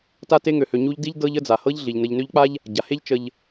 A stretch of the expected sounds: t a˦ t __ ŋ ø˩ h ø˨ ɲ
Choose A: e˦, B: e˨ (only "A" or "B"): A